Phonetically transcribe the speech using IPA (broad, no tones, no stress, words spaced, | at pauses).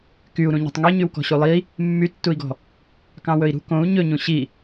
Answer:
kyu̯ɾũ ɲɔ̤tˤŋeɲywkɔ̤ ɕulˠi | mːytːui̯ɡɔ̤ | kɑ̃wɵi̯ɾṳ kõu̯ ɲɵɲũ ɕi